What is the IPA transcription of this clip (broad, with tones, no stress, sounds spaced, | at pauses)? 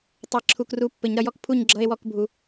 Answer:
tˤ ə˨ e̯ ǁʰ u˨ k r u˨˥ pː ɘ˨˩˦ ɲ ɾ ʌ˨ j ɔ˥ k pʰ u˥˨ ɲ ɡ͡ǁ ʌ˧˥˧ e̯ w ɔ˥˨ k bʱ u˨˩˦